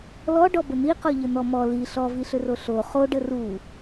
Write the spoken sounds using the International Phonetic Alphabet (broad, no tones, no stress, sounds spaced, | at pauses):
l ɔ ɖ ɔ b ə n̪ i q ɔ ʎ ə n̪ ɔ m ɔ l i ɬ ɔ v i ɬ ʏ r o ɬ o χ o ɖ ə r u